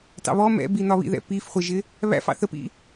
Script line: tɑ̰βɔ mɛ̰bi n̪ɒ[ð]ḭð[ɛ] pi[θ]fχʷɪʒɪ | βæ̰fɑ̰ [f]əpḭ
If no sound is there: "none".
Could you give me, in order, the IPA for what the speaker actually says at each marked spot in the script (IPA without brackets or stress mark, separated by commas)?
β, ɛ̰, none, θ